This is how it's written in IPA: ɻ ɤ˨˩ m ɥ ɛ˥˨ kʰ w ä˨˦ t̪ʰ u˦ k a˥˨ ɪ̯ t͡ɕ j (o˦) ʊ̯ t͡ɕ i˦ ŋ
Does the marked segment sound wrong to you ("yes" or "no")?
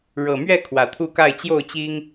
yes